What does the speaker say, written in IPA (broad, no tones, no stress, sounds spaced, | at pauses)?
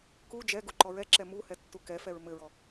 k u d͡ʒ ɛ ɡ u ǃ ɔ ɹ ɛ ǁ ɛ m u h ɛ tː u k ɛ f ɛ ɹ m ɘ ɹ ɔ